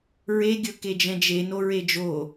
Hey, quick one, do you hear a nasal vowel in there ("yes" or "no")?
yes